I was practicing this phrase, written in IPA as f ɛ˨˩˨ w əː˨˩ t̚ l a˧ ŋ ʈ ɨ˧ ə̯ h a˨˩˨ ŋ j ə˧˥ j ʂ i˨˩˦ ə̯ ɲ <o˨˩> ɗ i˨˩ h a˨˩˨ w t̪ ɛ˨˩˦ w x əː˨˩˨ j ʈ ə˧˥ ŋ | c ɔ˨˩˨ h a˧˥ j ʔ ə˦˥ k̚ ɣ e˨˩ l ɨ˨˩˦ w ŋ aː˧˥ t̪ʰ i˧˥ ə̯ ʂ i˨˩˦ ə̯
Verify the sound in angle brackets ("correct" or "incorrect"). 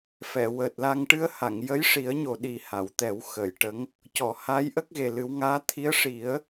correct